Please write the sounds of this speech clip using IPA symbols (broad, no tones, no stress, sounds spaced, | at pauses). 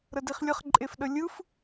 ɾ ə d i χ lʲ ə χ ǃʼ e f ɗ ə lʲ ɯ f